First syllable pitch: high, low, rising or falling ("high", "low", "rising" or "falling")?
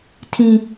low